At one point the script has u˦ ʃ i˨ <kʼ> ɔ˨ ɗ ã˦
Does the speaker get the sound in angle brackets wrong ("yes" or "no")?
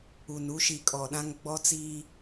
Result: no